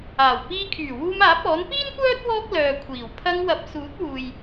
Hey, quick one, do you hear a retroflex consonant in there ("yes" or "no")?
no